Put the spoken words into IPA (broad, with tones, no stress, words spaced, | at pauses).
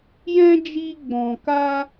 jɛ̃˦d͡ʒi˧ ɡ͡bɔ̃˨ka˧